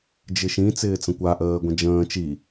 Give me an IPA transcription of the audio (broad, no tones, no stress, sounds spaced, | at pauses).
d͡ʒ ɪ ʃ ĩ t͡s ɪː t͡s ə̃ kʷ a ʔ əː ɡʷ ə̃ d͡ʒ ə̃ː t͡ʃ i